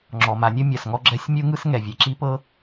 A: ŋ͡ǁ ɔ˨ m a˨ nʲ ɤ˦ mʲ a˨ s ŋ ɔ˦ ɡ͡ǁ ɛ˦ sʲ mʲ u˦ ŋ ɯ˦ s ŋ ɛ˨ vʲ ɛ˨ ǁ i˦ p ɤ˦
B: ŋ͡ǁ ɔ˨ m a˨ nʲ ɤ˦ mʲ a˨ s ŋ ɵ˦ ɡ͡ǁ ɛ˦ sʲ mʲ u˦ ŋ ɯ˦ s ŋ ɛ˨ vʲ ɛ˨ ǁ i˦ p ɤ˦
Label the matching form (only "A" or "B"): A